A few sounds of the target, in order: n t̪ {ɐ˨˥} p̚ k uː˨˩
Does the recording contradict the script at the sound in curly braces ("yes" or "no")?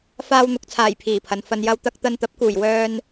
no